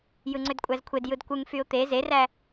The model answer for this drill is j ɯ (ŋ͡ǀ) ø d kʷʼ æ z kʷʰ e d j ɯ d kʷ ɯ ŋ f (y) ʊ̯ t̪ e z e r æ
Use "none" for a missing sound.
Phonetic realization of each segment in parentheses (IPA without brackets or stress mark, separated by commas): ŋ͡ǀ, y